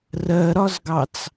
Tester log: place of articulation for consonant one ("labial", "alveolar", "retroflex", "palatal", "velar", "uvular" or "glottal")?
alveolar